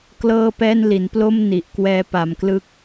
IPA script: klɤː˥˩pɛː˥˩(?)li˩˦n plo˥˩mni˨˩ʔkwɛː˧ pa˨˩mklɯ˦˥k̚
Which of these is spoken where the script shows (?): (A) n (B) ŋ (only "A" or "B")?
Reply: A